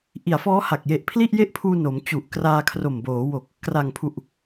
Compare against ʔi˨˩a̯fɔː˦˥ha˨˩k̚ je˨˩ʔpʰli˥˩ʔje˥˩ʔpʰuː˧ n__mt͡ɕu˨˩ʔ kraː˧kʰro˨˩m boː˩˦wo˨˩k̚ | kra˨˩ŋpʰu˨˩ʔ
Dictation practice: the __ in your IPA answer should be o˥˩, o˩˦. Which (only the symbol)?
o˩˦